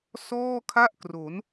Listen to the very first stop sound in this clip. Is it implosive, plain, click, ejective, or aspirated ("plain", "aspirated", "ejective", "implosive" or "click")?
aspirated